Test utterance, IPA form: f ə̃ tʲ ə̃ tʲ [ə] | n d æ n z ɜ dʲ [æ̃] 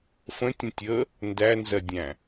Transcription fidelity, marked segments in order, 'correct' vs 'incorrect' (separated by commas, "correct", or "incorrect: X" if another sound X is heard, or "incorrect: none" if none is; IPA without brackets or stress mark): correct, correct